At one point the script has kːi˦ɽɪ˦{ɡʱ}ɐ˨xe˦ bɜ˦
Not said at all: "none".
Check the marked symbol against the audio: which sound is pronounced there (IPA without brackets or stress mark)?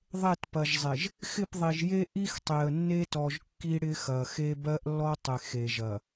x